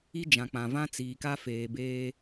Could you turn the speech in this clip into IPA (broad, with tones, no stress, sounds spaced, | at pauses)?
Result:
i˦ d͡ʒ ã˨ k͡p ã˨ v ã˦ t͡s iː˨ k a˦ f eː˨ b eː˦